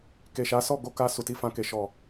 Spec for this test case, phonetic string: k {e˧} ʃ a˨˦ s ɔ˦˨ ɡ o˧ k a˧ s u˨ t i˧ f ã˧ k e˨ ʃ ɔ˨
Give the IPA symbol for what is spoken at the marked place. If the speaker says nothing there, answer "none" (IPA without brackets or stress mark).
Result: e˨